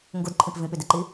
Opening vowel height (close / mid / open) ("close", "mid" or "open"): close